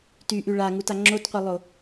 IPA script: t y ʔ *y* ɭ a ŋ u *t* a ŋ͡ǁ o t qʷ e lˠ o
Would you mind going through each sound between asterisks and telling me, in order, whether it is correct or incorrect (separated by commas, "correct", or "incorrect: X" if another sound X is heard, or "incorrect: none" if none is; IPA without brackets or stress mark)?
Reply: correct, correct